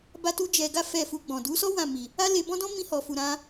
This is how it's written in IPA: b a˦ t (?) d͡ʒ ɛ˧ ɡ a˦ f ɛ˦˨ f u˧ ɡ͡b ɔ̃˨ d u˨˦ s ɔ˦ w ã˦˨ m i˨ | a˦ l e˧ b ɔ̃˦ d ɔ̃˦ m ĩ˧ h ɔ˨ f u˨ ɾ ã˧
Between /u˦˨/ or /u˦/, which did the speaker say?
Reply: u˦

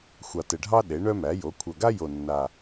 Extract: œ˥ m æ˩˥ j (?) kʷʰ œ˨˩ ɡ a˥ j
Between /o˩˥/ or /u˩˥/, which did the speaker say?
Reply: o˩˥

